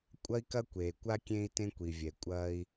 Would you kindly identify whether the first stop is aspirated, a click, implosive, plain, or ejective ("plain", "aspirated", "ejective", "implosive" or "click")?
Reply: ejective